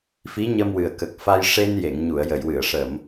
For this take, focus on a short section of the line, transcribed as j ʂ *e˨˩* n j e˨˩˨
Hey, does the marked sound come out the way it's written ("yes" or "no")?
no